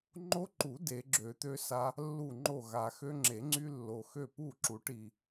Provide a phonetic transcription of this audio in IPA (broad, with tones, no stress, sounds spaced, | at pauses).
ŋ͡ǃ o˦ ǃ u˨˩˦ d e˨˩˦ ɡ͡ǁ ø˨˩˦ t̪ ø˦ s a˦ | lː u˥˩ ŋ͡ǃ o˥˩ ɣ a˨ x ø˦ ŋ͡ǁ e˨˩˦ ŋ͡ǀ y˦ lː o˨ x ø˥˩ p u˥˩ ǁ u˨˩˦ ʈ i˨